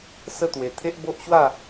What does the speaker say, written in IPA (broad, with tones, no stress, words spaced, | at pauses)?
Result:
sə˥˧t̪we˧ t̪ʰe˦ʔbo˦ʔɕwa˥˧